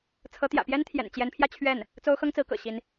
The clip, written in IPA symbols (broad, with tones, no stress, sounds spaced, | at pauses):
t͡sʰ ɤ˧˥ t̪ j ä̰˨˩ p j ɛ˥ n t̪ʰ j ɛ̰˨˩ n t͡ɕ j ɛ˧˥ n pʰ j ä˥˧ t͡ɕʰ ɥ ɛ˥˩ n | t͡s o˥ ʊ̯ x ɤ˥ ŋ t͡s ɹ̩˧˥ k ɤ̰˨˩ ɕ i˧˥ n